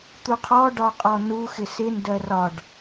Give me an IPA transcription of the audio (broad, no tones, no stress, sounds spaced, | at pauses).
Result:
t̪ u qʰ ɔ ɖ ɒ qʼ ɔ n u x ɪ s ɪ n d ɜ r ɒ ɖ